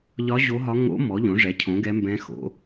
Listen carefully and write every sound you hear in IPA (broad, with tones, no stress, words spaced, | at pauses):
ʎɒ˧˥ ʑo˧˥ɦɒ˧˥ ŋo̰˧˥ mɔ˩˥ʎõ˩˥ʐɛ˩˥ cʰõ˩˥ɡɛ˧˥mbɛ̃˧˥xo̰˩˥